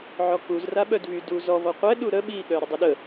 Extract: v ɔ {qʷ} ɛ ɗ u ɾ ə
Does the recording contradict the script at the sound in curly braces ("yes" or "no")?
no